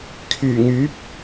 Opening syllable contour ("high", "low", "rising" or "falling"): low